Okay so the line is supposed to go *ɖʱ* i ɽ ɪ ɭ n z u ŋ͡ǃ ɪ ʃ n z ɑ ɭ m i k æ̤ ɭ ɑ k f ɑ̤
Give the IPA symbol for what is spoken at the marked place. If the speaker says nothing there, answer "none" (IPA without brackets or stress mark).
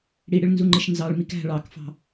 ɽ